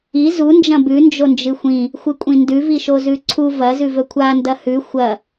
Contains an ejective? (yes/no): yes